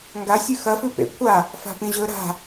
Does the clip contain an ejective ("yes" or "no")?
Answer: no